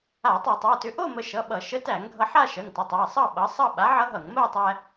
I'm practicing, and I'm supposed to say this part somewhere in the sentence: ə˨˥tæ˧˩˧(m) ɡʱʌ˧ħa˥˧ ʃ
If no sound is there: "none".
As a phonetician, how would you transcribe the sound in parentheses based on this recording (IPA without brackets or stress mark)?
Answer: ŋ